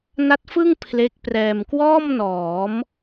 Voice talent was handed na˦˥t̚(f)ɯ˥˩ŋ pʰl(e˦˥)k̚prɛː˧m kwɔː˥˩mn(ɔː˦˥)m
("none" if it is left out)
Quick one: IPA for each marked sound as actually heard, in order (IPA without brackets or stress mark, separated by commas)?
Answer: f, e˦˥, ɔː˩˦